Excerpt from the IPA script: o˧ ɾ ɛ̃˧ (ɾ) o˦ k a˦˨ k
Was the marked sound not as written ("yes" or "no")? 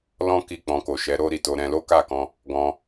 yes